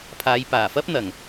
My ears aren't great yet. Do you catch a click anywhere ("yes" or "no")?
no